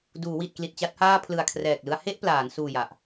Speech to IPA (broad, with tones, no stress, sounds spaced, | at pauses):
d uː˩˦ w i˨˩ t̚ k l i˨˩ t̚ t͡ɕ a˦˥ t̚ h aː˥˩ pʰ l ɯ˨˩ a̯ kʰ r ɛː˨˩ k̚ l ɯ˧ a̯ h e˥˩ ʔ p l aː˩˦ n s uː˨˩ j a˨˩ ʔ